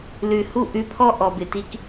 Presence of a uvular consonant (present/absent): absent